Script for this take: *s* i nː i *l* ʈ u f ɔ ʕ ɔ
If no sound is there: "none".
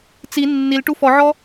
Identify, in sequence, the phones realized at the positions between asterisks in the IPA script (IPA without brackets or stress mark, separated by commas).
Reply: t͡s, l